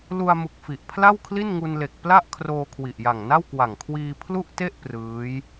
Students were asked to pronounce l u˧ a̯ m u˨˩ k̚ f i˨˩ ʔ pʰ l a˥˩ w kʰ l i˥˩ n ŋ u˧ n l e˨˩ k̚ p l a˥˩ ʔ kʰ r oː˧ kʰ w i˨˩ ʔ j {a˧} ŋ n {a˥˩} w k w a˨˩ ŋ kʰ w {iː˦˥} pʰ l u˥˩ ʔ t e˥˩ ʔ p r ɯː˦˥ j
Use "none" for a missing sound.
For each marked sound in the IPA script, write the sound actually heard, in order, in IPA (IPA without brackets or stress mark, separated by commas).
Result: a˨˩, a˥˩, iː˧